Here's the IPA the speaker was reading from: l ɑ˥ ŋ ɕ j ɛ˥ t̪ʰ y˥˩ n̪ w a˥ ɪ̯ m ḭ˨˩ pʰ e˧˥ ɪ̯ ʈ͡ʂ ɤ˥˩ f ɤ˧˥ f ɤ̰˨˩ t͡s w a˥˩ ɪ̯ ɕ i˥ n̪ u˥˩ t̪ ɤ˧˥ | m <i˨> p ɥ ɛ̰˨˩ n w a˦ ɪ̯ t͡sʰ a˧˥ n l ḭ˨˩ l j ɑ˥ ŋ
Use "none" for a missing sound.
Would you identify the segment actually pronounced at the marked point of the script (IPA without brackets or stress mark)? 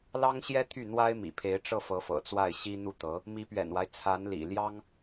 i˧˥